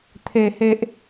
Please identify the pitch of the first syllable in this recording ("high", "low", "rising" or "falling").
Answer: low